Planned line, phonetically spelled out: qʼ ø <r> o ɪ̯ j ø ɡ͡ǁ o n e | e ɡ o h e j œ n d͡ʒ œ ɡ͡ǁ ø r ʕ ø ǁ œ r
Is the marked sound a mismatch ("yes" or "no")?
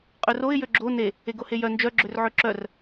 no